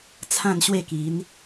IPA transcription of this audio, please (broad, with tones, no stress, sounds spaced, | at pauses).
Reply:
t͡sʰ ã˥˧ n ɕ w e˥˧ k i˨˦ n